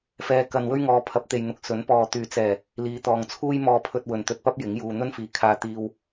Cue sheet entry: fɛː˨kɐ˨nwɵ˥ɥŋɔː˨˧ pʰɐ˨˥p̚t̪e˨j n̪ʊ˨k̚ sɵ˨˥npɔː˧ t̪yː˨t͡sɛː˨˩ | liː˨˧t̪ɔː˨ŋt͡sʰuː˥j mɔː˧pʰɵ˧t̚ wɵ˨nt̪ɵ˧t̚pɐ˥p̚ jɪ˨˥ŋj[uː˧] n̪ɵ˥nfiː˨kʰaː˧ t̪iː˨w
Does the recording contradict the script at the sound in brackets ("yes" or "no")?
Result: no